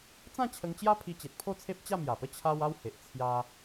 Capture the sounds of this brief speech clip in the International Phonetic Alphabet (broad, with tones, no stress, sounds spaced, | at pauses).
t͡s ã˥˧ t͡ɕʰ ə˧ ŋ t͡ɕ j a˦ pʰ i˧ t͡ɕ e˨ t̚ pʰ o˥˧ t͡sʰ e˦ p̚ t͡ɕ a˥˧ m j a˨˩ p ə˥˧ t͡ɕʰ a˧ w a˦ w h e˨ ʔ t͡sʰ j a˦